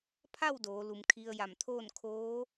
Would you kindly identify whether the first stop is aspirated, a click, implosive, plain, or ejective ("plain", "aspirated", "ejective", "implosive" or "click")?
aspirated